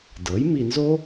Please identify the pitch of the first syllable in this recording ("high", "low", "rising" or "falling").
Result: rising